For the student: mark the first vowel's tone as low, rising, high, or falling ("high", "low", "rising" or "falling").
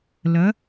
rising